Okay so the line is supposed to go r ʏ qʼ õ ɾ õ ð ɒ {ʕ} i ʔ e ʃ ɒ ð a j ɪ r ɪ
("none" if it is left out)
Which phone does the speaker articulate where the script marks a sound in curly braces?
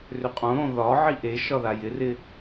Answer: ʕ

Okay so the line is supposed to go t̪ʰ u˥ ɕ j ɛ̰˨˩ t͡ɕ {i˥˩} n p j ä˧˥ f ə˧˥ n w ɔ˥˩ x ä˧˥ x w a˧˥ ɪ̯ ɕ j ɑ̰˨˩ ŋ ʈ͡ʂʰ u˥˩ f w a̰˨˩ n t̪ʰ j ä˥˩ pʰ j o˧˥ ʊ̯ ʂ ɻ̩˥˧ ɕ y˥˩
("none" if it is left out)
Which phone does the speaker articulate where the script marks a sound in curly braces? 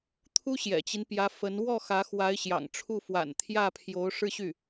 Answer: i˦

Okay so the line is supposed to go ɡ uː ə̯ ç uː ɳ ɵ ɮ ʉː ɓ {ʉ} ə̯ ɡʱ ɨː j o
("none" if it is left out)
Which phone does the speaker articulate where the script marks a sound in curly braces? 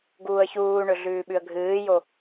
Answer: ʉ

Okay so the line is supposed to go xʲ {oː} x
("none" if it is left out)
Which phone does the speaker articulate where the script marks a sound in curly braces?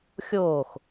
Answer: oː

